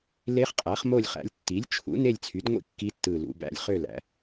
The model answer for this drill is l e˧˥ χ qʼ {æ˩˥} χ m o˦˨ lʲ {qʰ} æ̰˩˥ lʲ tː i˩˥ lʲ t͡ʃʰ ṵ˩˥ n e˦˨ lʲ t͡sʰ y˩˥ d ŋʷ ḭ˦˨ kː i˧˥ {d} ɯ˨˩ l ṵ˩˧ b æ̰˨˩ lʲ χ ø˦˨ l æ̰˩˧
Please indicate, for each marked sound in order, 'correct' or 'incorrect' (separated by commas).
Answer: correct, incorrect, incorrect